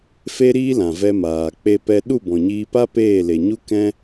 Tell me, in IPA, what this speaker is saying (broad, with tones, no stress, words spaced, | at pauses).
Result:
fe˦ɾiː˦lã˨ vɛ˧maː˨ k͡pe˧pɛ˧ ɗu˦˨bɔ̃˨ɲiː˧pa˦ peː˦˨le˨ɲu˦ kɛ̃˦